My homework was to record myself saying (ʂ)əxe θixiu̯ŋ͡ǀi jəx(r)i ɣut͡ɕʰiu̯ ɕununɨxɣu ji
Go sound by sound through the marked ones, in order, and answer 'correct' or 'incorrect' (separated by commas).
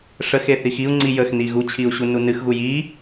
correct, incorrect